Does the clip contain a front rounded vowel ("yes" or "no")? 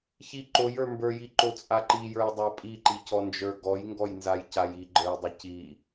no